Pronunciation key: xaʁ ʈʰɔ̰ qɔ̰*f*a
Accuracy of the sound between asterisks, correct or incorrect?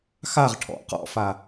correct